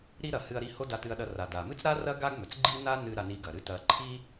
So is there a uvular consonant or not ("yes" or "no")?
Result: no